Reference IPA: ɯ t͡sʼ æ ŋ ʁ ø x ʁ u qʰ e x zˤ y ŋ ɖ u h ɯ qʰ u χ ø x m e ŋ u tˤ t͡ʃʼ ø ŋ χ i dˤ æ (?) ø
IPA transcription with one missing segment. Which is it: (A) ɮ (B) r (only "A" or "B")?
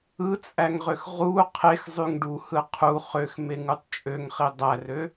B